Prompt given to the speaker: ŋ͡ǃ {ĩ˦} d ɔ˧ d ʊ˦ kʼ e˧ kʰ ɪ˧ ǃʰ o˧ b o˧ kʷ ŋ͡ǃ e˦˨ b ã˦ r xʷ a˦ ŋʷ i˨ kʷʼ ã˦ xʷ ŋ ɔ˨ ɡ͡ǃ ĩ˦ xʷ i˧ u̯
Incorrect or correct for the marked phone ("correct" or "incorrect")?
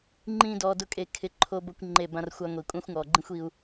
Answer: correct